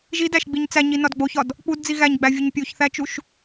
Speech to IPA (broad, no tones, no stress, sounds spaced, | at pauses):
ʒ i d æ ʃ ɡ͡b i ɲ t͡s æ ɲ i n ɒ d ɡ͡b o ç ɒ d | k͡p u d d͡z i ɣ æ ɲ ɡ͡b æ vʲ o ɲ pʲ o ç θ æ t͡ʃ u ʃ